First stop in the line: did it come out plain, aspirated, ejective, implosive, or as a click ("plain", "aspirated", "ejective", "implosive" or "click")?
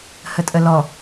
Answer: ejective